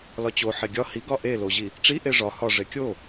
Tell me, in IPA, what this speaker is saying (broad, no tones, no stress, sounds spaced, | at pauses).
l ɒ t͡ɕ o ħ e ɡʲ ɒ h i ɡ ɒ ʔ e l o ʑ i | ʈ͡ʂ i ʔ e ʐ ɒ h ɒ ʐ e kʲ o